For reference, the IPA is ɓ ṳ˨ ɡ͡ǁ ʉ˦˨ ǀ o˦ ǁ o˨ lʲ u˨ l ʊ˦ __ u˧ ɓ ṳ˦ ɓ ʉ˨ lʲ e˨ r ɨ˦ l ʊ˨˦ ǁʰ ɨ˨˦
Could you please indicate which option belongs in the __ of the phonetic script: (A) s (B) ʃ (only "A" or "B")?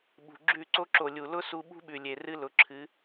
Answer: A